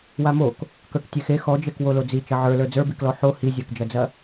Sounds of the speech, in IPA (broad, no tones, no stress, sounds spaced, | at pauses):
w a m o k | k ə˞ k tʲ e x e x ɔ d͡ʒ e k w o l o d͡z i t͡ʃ ɐ ʕ ə˞ l ə˞ d͡z ə˞ b i k l ɔ ħ o h i zʲ ə˞ k d͡ʒ ɐ d͡z ɐ